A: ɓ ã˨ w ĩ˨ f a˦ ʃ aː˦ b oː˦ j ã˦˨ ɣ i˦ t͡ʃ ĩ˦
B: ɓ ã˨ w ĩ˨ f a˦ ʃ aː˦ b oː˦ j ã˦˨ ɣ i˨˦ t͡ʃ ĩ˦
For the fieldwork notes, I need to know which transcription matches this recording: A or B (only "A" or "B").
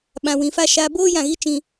A